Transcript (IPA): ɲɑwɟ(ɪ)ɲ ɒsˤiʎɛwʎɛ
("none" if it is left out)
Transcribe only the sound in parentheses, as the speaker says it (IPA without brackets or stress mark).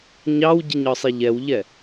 ɪ